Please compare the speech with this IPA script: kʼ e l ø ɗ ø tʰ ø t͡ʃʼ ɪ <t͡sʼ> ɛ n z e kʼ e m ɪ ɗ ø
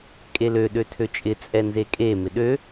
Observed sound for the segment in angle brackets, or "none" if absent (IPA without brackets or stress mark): t͡sʼ